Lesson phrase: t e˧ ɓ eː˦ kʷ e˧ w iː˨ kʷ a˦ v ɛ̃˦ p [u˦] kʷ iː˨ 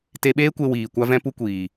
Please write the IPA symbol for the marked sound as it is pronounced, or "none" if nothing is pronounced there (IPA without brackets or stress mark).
u˦